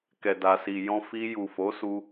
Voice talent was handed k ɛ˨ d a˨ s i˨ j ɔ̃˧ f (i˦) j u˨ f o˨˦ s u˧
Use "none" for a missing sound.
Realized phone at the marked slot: i˧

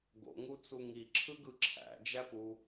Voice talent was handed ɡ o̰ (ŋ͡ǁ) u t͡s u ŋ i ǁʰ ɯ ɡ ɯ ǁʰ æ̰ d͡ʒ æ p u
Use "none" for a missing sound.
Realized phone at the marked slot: ŋ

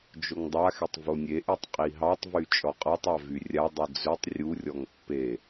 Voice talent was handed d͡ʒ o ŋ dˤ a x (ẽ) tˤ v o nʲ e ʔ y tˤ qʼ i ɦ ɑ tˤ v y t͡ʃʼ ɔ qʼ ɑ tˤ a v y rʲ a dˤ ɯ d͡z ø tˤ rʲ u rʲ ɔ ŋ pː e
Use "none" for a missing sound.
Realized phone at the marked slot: e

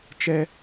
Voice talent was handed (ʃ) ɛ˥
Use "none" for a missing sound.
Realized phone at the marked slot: t͡ʃ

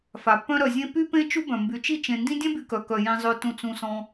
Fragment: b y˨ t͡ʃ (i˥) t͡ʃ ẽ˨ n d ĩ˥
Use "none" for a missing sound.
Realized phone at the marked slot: i˥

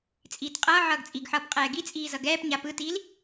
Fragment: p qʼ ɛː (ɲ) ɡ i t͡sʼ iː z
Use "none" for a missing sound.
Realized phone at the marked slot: none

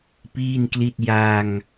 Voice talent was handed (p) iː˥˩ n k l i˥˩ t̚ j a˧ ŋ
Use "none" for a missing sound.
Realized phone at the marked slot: p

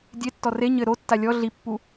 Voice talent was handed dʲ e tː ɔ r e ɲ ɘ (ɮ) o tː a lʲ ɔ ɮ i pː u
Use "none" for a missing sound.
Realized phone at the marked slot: ɾ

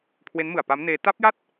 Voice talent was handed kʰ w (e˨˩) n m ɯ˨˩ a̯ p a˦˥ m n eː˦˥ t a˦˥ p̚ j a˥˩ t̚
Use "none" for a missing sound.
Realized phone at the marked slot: e˦˥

